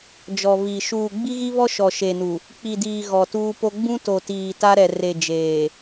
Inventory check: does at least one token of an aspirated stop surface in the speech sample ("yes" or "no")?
no